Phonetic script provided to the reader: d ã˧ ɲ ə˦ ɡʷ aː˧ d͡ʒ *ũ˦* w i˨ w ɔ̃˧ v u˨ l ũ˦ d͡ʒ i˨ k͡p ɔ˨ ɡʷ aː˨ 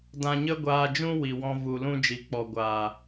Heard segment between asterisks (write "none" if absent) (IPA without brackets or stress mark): ũ˦